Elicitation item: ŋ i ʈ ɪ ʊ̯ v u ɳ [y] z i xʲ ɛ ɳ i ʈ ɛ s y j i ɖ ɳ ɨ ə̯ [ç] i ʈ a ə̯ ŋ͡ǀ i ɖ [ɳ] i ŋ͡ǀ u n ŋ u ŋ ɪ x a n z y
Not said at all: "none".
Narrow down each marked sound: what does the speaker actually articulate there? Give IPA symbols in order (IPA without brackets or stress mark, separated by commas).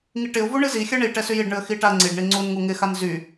ɨ, x, ɳ